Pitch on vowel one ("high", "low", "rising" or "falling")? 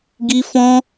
high